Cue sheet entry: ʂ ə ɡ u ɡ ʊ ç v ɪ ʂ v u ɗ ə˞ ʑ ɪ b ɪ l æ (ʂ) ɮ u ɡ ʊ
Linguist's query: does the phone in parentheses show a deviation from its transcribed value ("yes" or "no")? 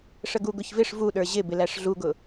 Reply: no